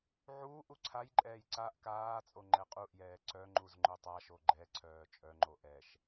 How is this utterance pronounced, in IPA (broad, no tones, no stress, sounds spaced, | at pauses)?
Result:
ʕ uː ʔ u ǀʰ a j ǃʼ ɛː j ǀ a ʔ k aː t͡sʼ o ŋ͡ǃ ɛ qʼ u ʔ j ɛː ǀ œ ŋ͡ǃ u z ŋ͡ǃ œ tˤ a ʃ o ɡ͡ǃ ɛ ǀʰ œː t͡ʃʼ œ ŋ͡ǃ o ʔ ɛ ʃ